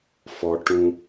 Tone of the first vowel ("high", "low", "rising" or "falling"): high